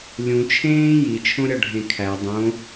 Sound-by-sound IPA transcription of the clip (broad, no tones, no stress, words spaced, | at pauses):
lʲũ t͡ʃʰẽː jit͡ʃʰõɾʲɒɖʱẽ kʰæ dˤõ